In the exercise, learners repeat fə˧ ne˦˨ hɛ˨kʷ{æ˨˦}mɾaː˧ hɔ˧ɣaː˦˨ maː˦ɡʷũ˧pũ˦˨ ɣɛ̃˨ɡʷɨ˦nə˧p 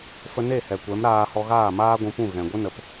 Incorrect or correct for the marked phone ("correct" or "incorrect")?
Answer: incorrect